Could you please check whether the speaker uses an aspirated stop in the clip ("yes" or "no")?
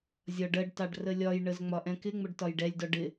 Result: no